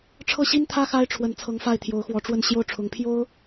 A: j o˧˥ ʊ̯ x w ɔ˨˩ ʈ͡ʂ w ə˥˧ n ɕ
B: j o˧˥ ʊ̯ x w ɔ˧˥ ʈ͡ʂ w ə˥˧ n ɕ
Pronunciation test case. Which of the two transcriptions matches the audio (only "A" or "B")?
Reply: B